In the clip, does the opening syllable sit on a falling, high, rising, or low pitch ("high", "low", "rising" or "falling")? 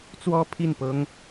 high